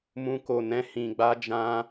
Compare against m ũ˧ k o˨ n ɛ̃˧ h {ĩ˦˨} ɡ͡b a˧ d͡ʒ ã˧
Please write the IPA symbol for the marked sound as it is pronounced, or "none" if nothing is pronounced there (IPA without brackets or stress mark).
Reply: ĩ˨